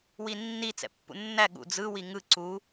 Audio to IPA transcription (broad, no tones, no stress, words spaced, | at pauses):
winːi t͡sɛ̰pːṵnːæ ɠṵd͡zɯ wiŋɯ ǀu